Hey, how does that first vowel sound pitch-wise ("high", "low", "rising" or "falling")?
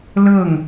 falling